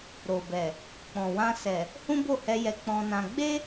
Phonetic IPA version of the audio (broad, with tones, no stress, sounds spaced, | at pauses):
ɾ o˨ b ɛ˨ | k͡p ɔ̃˨ w ã˧ s ɛ˨ | h ũ˦ b o˦˨ h ɛ˧ j ɛ˧ k͡p ɔ̃˧ n ã˧ ɡ͡b e˦